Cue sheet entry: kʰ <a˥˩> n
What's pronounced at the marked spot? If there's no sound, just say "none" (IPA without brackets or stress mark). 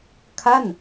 a˥˩